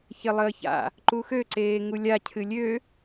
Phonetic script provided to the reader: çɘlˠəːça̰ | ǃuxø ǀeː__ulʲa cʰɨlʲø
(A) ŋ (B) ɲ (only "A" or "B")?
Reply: A